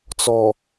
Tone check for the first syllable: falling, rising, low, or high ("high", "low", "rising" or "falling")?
low